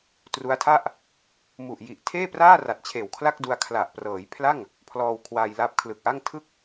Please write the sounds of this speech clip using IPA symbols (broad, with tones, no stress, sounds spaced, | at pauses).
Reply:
t r u˦˥ a̯ tʰ a˥˩ ʔ | m u˨˩ ʔ j i˨˩ ʔ tʰ eː˥˩ p r aː˥˩ r a˨˩ t̚ t͡ɕʰ eː˨˩ w kʰ l a˥˩ k̚ d u˧ a̯ kʰ l a˨˩ ʔ p r ɤː˩˦ j pʰ l a˥˩ ŋ | pʰ l ɔː˧ w kʰ w aː˧ j l a˦˥ p̚ kʰ l ɯ˨˩ k̚ ʔ a˥˩ ŋ tʰ ɯ˥˩ k̚